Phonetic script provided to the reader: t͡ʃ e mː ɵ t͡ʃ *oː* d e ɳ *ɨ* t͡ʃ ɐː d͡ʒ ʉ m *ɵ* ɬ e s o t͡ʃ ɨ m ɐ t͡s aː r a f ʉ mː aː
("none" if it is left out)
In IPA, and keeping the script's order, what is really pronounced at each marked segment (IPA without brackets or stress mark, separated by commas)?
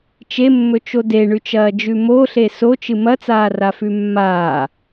o, ʉ, o